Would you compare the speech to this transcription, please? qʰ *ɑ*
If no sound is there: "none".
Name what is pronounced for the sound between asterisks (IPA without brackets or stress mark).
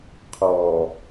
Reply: ɔ